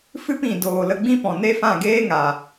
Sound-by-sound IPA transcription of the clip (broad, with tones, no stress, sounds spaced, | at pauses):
f ɨ˦ p ĩ˨ d oː˨ l ə˧ ɡ͡b ĩ˦ p ɔ̃˨ n e˦ f ã˦˨ ɡ eː˦ ŋ a˨